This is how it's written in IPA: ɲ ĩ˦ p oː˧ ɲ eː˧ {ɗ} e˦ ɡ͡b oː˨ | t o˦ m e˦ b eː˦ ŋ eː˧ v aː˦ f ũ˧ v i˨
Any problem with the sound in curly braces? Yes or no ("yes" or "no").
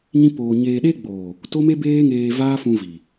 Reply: no